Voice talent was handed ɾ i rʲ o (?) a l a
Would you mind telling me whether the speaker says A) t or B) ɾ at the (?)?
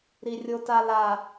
A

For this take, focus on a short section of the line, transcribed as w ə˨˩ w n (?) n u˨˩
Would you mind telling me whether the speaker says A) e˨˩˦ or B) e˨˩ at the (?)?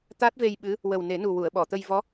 A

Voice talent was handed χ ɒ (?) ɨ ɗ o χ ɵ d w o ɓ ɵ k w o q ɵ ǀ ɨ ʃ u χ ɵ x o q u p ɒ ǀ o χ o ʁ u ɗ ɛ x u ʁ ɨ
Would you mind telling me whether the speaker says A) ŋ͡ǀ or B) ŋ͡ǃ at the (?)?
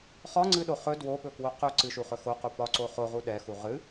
A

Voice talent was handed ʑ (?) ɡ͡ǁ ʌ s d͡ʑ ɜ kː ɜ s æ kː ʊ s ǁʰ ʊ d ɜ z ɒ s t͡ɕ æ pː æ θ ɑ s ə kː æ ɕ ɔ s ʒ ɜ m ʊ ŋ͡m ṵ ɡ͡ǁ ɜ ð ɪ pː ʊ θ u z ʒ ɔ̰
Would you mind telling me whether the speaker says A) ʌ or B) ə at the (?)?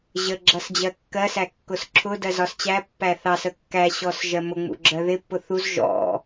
B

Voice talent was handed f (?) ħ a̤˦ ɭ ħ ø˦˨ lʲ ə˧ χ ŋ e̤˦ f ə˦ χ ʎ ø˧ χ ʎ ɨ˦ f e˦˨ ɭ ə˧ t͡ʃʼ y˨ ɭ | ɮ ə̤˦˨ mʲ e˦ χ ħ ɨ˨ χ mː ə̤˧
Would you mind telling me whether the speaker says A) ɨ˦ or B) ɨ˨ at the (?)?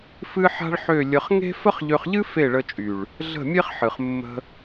A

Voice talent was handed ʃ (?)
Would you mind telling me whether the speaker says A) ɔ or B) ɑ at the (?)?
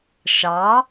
B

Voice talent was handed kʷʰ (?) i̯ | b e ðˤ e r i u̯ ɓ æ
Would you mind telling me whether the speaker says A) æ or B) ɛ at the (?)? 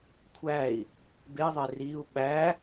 A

